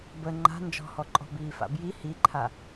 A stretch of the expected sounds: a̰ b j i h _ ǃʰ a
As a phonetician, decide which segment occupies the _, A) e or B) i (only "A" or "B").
B